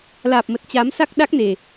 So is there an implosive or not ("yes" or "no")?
yes